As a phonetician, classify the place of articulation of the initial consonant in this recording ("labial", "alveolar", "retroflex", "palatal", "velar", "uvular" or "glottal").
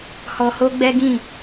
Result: glottal